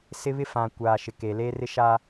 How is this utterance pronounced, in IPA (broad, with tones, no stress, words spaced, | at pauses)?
sɪ˦βɪ˦fã˨kʷaː˨ ʃɪ˨ke˨ le˦rɪ˦ʃa˦